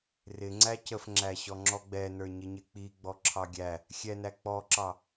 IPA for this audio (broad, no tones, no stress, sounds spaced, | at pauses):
r ɪ ŋ͡ǀ æ c ə f ŋ͡ǁ æ ɕ ɔ ŋ͡ǁ ɔ ɡ͡b ɛ n ə˞ ɲ ɪ ɲ ɪ k͡p i ɡ͡b ɔ ǁʰ ɑ ɡʲ æ | xʲ ɛ n æ k͡p ɔ ǁ ɑ